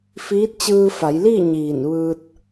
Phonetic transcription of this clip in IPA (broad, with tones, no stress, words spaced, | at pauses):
fiː˧˥t̚t͡ɕɯː˧fa˩˧jliː˥˨ ɲiː˧˩nʋɯː˧t̚